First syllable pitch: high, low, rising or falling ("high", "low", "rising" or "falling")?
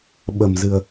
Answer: low